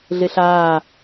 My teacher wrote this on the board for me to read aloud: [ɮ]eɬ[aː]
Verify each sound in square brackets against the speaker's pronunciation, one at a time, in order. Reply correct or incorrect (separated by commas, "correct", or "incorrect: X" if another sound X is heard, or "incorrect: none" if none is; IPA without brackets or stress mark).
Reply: correct, correct